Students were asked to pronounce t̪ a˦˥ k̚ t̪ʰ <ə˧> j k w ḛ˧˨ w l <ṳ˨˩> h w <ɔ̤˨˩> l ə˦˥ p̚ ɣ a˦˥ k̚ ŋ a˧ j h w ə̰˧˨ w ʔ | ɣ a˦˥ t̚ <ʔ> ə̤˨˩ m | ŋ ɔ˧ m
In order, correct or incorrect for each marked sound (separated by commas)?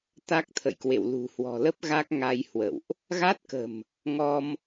incorrect, correct, correct, incorrect